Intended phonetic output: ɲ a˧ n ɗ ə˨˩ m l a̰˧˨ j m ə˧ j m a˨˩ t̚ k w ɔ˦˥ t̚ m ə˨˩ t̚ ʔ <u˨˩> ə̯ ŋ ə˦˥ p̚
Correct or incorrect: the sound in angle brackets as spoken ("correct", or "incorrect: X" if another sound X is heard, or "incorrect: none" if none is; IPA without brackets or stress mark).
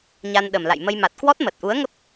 incorrect: u˨˦